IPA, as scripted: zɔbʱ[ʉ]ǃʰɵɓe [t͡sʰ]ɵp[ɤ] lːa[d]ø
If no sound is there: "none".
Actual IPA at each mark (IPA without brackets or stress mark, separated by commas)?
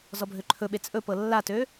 ø, t͡sʼ, ɤ, t